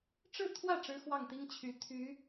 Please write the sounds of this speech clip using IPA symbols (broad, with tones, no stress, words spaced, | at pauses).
ʈ͡ʂɻ̩˥˧t̪ʰwä˥˩ ʈ͡ʂɻ̩˥xwɑ˥˩ŋt̪i˥ŋ t͡ɕʰy˧˥t̪ʰy˧˥